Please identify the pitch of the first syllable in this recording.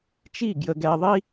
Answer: falling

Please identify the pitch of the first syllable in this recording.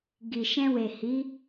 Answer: low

